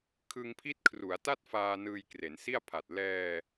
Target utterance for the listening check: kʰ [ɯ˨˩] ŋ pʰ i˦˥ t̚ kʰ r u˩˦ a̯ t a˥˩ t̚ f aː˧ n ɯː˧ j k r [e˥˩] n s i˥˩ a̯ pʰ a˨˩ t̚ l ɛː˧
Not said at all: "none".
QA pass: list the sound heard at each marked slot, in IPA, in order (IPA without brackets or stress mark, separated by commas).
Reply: ɯ˧, e˩˦